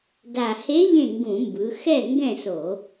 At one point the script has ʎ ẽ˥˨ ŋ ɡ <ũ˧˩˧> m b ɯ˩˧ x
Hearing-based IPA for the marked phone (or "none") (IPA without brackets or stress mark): ũ˧˩˧